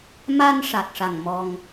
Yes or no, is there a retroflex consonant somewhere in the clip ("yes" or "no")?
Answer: yes